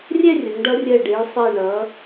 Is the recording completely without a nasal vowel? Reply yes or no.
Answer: yes